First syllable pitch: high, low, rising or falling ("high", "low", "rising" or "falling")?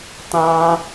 high